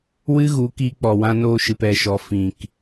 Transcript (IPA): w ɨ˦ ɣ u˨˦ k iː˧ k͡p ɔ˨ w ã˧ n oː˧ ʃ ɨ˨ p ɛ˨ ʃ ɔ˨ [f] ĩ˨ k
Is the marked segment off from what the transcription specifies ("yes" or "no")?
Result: no